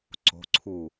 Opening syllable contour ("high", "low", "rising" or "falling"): rising